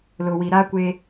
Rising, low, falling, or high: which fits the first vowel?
low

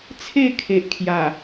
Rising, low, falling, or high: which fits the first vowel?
falling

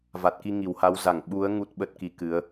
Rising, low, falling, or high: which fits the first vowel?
low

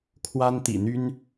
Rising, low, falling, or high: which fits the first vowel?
high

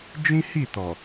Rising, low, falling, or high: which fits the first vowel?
high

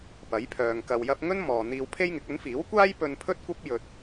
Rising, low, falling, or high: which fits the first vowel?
rising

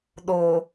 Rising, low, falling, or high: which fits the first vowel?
low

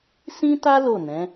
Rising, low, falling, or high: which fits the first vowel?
high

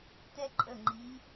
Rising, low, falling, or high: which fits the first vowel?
high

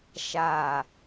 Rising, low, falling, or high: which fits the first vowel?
low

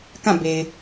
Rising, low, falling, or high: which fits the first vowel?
falling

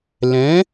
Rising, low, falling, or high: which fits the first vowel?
rising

